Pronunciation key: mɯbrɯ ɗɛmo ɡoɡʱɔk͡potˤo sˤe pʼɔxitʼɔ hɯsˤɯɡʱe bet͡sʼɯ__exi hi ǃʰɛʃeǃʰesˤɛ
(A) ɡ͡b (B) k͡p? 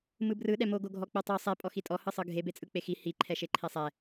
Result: B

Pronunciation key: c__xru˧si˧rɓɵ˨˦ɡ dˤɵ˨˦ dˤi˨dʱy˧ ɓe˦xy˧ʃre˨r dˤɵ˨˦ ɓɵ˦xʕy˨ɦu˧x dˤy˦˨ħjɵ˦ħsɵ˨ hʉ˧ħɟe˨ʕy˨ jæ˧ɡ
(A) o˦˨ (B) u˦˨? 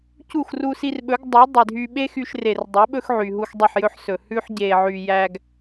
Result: B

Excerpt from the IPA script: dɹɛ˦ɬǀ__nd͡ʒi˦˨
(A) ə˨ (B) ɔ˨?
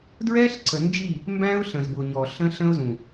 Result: A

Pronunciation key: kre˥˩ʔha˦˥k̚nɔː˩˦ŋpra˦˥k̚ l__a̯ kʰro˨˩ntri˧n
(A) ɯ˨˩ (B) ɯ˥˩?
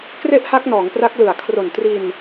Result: A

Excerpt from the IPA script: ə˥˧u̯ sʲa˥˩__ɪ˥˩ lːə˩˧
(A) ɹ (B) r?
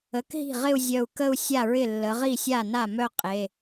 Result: A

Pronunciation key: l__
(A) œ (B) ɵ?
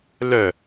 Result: A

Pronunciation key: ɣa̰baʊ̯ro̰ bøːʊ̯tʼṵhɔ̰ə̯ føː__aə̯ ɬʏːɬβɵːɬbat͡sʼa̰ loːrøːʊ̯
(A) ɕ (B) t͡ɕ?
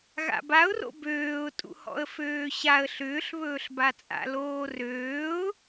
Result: A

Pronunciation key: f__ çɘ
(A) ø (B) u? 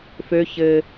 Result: A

